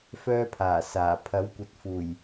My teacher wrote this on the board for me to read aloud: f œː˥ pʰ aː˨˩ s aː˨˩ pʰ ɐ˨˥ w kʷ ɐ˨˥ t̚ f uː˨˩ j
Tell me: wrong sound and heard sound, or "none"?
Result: none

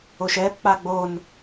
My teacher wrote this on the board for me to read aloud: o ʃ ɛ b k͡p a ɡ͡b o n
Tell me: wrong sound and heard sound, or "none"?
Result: none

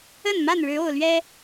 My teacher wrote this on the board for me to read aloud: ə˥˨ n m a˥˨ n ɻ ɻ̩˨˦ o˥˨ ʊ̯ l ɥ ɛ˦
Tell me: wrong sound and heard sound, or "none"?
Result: none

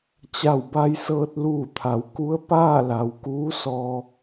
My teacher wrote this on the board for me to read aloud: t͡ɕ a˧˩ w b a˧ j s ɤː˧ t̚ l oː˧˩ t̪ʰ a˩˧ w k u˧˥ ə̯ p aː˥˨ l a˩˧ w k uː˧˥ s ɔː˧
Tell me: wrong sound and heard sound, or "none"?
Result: oː˧˩ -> uː˧˩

